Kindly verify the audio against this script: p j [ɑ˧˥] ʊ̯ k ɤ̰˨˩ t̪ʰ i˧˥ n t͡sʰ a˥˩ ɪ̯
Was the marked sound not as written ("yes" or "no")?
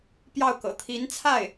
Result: yes